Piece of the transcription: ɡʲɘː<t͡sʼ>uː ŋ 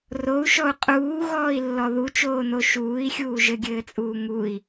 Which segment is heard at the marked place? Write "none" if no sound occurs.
t͡sʼ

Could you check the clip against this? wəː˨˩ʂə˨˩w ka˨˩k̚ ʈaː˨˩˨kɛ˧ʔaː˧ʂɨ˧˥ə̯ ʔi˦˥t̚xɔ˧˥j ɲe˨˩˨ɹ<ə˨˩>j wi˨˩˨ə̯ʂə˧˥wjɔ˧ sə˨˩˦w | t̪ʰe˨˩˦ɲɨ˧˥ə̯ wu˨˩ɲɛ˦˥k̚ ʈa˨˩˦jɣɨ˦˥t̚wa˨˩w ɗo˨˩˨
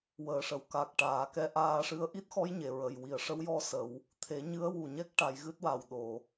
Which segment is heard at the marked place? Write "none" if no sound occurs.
ə˨˩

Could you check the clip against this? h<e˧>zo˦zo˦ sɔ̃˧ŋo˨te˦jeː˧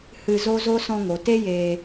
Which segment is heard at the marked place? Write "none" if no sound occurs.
ɨ˧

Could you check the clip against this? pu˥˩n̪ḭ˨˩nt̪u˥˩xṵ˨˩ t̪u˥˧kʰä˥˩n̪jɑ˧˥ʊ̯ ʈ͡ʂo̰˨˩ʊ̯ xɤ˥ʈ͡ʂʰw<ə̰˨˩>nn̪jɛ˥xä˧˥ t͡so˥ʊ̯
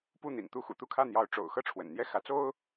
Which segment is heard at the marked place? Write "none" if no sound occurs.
ə̰˨˩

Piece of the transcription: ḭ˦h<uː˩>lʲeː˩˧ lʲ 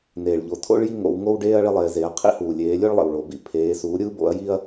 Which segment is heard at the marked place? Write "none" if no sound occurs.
uː˩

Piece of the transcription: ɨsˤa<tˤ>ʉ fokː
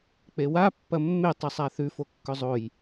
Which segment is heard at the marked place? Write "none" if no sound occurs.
θ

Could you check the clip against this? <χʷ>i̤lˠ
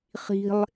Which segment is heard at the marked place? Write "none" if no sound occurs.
χ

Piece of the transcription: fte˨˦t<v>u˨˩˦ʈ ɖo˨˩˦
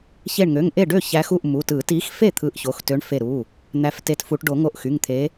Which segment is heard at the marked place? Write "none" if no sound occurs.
f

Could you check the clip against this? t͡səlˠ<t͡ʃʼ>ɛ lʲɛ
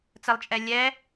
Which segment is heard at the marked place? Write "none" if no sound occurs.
t͡ʃʼ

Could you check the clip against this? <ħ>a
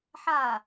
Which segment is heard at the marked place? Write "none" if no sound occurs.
ħ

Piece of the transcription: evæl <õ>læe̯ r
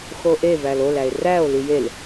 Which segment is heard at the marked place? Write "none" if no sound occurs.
o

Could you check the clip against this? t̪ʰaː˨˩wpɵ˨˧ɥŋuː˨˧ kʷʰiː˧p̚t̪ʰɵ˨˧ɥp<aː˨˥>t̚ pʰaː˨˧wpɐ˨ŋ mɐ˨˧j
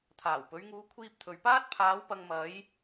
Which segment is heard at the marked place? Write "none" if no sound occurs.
aː˥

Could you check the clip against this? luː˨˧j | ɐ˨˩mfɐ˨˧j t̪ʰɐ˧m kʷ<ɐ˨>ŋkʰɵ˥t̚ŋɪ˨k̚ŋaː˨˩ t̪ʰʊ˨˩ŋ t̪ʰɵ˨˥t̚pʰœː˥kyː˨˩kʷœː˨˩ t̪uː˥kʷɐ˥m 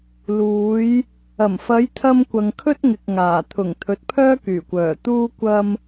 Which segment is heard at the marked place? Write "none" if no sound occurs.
ɐ˨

